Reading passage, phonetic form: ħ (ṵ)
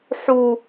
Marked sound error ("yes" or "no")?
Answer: yes